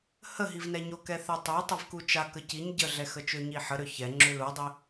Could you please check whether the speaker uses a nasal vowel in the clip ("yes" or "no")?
no